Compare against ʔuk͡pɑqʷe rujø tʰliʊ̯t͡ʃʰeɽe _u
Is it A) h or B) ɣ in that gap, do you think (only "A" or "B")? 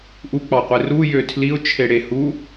A